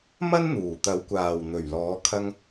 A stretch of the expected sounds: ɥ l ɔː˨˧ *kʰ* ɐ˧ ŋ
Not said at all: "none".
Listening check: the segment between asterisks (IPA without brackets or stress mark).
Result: kʰ